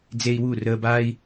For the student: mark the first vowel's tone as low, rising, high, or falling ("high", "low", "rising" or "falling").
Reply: high